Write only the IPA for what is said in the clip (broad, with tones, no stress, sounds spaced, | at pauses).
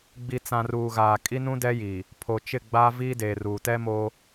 ɡ͡b i˨ t͡s ã˨ r uː˨ ɣ aː˨ kʼ i˦ n ũ˦ d ɛ˦ j iː˨ | pʰ o˨ t͡ʃ ɪ˦˨ ɡ͡b a˦ v iː˦ d eː˨ r uː˨ t ɛ˦ m oː˦